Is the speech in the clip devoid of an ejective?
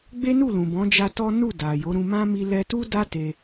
yes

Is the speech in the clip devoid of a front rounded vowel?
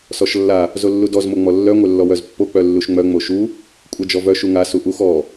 no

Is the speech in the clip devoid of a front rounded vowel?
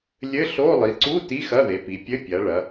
yes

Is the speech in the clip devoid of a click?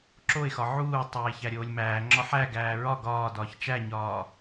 no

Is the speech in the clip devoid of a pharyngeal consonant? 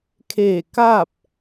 yes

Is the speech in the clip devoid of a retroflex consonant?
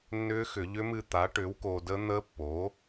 no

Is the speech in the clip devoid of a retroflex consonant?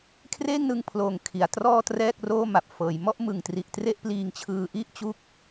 yes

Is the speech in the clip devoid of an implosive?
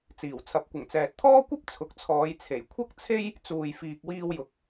yes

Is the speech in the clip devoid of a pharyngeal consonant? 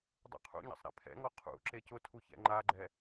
yes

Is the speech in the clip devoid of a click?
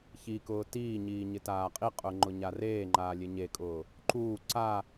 no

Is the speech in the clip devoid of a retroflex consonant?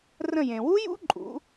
yes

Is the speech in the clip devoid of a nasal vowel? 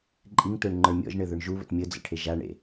yes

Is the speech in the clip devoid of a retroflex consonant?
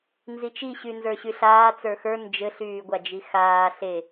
yes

